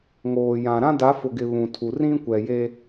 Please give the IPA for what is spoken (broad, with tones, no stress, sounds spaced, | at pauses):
ŋ oː˨ j ã˨ ɾ ã˦ d a˨˦ f ʊ˨ ɡ ɪ˨ β ũ˨ tʰ u˨ r ĩ˦ kʷ ɛ˨ j e˦